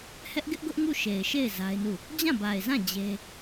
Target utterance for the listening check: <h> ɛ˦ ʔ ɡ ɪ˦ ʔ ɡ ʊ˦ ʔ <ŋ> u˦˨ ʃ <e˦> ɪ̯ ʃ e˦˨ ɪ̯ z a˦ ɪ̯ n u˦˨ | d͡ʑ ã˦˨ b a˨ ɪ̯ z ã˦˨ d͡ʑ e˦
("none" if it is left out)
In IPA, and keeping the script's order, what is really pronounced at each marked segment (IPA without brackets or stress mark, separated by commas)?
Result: h, ŋ, e˨